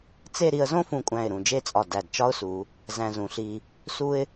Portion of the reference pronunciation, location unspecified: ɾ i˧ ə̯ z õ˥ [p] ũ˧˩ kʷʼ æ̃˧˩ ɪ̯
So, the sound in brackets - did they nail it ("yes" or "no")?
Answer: no